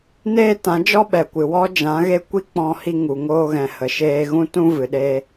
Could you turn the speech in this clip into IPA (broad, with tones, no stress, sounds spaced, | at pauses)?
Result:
n eː˧ t ã˨˦ d͡ʒ ɔ˦ ɓ ɛ˨ kʷ ɨ˨ w ɔ˦ d͡ʒ ã˨˦ ɣ e˦ kʷ i˦ k͡p ɔ̃˧ h i˧ ŋ u˨ ŋ oː˧ ɣ ɛ̃˨ h ə˨ ʃ eː˧ ɣ ũ˦ t ũ˦ v ɨ˨ ɗ e˧